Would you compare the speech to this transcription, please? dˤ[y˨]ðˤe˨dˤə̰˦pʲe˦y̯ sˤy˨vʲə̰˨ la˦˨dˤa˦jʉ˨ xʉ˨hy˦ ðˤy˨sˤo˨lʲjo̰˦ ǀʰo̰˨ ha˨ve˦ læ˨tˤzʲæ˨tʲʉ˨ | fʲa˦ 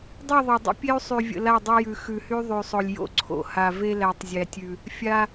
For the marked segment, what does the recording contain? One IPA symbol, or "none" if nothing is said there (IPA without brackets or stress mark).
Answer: y˦˨